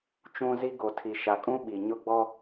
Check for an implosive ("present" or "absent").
present